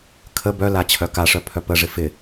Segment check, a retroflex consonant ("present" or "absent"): present